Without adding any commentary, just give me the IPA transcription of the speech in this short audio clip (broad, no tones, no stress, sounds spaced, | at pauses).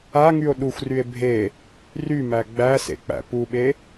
a ŋ y o̯ ɗ u xʷ r y e̯ bʱ e | r y m æ ɡ͡b æ s ḛ k͡p æ̰ p u ɓ e